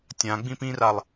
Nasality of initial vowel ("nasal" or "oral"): nasal